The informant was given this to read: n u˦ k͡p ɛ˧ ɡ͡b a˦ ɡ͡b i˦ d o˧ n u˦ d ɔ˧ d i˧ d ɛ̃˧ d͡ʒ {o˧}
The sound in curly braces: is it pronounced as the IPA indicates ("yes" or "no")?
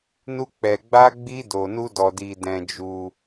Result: no